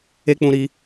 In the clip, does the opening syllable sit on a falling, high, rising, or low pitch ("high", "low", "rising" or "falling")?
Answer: high